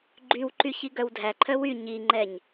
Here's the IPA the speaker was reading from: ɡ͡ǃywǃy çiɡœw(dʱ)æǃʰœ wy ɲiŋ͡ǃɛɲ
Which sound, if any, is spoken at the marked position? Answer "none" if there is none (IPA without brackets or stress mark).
dʱ